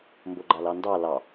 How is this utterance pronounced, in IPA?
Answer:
mboɡ͡ǃalɑndɑ lɑ

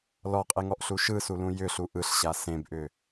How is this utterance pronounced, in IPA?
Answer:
lɔqʼeŋɔʔɬu ʃɯsulũ jʏɬu ʔɯɬɕa sẽbʔʏ

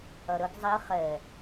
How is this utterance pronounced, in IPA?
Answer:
ɐɾəɡ zˤi χɛ

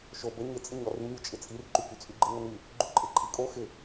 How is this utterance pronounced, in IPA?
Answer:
ʃo bə ɲɪ t͡sʼɪɲɔry mʲot͡ʃʼɪt͡sʼir ǃykyt͡sʼyɡ͡ǃɪ ŋəny | ɡ͡ǃuǃʼɪǃʼikʼo xɪ

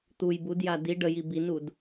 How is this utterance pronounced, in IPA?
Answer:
t̪uj budja di ɖəji binud

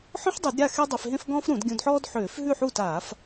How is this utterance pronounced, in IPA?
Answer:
ħɔ̃˥ħdˤu˧˩˧dɾʲa˥˩ xe˥dˤe˧fɦẽ˥f ɡɔ̃ː˥fɾũ˧˩˧dɡʲũ˧dħɔː˥d ħøː˧˩˧f ɦʉ˥˩ħu˥˩taː˧˩˧f

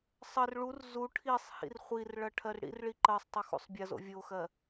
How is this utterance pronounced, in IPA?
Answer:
sˤɜr ɭur zu ʈʰisˤhḭr χʷirɭɐ ʈʰɜrɽḭrɭi ǃɜsˤtˤo xṵsˤbʲɐzo̰ vʲoxɜ

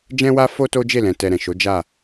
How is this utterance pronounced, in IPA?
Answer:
d͡ʒɛ̃˦wa˦ fo˦to˦d͡ʒe˦˨lɛ̃˨ tɛ˧ɾɛ̃˨ ʃo˨˦d͡ʒa˦˨

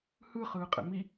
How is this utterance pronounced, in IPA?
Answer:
hɯ χɯːqʼɛ̰mi

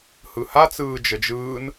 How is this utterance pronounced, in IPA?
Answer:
hɯha t͡sɯːd͡ʒəd͡ʒɯːn

